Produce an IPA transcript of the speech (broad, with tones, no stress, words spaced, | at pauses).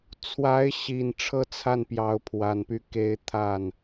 t͡sʰwa˧˥ɪ̯ɕi˨˩n ʈ͡ʂʰɤ˥˧t͡sʰa˥˩n pjɑ˧˥ʊ̯pʰwa˨˩npy˥˩ ke˧˥ɪ̯ t̪ʰa˥˩n